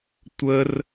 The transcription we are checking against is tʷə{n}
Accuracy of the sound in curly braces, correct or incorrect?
incorrect